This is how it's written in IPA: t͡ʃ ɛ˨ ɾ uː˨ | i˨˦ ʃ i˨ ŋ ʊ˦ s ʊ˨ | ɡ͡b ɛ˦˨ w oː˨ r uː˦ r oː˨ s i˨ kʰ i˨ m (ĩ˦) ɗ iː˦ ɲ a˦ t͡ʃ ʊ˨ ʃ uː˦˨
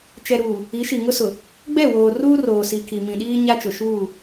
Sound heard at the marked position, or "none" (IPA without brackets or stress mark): ĩ˨